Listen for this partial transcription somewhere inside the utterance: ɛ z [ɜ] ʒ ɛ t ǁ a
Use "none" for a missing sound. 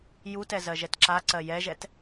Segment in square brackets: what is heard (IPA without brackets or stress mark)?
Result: ɜ